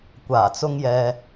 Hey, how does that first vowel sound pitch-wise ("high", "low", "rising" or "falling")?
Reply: low